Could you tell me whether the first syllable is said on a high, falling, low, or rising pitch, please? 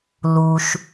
low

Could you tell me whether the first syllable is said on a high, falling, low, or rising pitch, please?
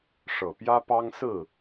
low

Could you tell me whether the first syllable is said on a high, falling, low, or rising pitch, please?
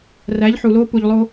rising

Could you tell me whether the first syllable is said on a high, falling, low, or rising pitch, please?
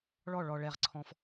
falling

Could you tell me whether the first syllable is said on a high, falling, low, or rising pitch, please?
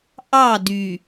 falling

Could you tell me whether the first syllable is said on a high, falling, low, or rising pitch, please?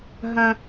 high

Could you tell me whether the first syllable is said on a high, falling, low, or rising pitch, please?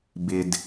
low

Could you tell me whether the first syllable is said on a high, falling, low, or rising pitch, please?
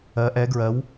rising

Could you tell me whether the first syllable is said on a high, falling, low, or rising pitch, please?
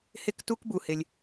high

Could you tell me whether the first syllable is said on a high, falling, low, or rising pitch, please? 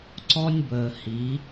high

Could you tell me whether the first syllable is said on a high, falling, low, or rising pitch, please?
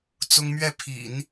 high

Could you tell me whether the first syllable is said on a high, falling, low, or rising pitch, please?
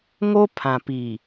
high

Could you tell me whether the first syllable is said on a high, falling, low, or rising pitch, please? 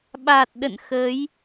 low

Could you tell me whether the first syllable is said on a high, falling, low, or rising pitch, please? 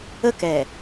falling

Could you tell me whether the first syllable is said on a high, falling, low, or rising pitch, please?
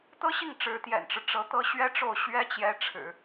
high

